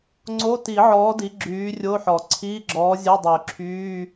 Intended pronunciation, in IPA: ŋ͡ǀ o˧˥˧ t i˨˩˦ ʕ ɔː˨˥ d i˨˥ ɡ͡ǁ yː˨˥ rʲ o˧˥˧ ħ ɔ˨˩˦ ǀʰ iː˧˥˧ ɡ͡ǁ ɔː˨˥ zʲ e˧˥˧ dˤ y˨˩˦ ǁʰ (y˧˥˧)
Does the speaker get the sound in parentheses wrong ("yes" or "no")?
yes